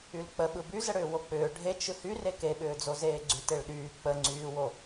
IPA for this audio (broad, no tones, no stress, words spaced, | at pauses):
ylk͡pə ɓɯbyzəɽʏː wok͡pʏː ɖʱet͡ʃ ɯhy rekeɓʏːd͡zo zeːɡ͡ǀyteɭɗyː k͡pəŋ͡ǀyːwo